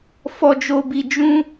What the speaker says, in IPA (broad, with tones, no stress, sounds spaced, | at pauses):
f ɔ˦ d͡ʒ o˦ b i˦ d͡ʒ ũ˦